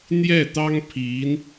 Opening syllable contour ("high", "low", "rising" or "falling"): falling